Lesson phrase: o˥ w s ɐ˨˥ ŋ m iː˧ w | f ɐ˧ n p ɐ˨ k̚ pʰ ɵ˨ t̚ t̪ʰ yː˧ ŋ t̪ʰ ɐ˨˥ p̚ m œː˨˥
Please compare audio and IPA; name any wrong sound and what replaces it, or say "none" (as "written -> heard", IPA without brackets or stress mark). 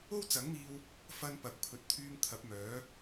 s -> t͡s